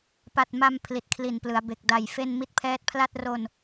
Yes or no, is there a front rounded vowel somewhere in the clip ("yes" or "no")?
no